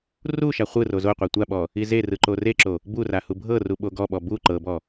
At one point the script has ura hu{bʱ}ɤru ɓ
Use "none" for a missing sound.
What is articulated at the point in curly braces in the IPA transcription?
bʱ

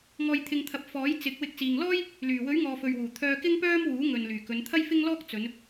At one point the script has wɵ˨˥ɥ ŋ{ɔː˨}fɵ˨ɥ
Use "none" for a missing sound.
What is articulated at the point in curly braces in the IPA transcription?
ɔː˨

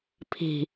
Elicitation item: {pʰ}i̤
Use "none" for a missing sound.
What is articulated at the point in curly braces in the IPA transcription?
pʰ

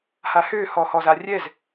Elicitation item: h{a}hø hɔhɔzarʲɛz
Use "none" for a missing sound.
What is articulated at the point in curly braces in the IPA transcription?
a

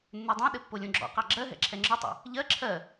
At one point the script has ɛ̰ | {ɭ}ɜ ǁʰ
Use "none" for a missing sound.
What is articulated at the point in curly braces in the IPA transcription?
ʎ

